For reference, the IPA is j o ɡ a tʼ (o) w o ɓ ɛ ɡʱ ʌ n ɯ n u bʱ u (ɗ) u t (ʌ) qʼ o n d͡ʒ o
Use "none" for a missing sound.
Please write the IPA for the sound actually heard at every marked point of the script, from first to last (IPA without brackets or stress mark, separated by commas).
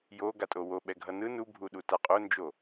o, ɗ, a